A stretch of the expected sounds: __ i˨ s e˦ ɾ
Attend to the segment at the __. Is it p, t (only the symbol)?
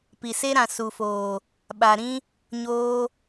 p